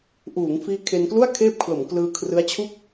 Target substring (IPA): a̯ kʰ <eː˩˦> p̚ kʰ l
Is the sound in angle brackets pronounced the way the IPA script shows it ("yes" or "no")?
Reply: no